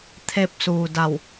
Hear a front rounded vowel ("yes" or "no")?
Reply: no